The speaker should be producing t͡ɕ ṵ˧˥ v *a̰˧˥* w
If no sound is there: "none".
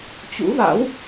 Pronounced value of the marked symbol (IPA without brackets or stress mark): a̰˧˥